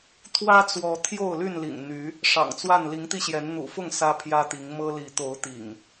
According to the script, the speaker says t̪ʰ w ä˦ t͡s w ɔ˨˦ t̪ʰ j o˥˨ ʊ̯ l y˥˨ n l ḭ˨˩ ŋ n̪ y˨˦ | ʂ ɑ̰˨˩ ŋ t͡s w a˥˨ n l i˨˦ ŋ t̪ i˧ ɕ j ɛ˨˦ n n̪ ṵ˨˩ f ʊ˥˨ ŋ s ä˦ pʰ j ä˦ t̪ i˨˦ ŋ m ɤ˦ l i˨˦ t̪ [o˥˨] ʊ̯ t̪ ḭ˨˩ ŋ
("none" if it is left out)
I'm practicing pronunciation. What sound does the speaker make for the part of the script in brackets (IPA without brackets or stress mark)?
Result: o˨˦